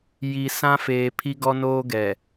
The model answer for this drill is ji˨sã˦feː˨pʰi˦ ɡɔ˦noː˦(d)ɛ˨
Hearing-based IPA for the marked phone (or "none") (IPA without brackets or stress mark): ɡ